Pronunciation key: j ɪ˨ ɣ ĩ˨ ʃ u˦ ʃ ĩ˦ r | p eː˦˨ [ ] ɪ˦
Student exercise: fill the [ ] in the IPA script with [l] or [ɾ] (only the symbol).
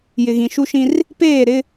ɾ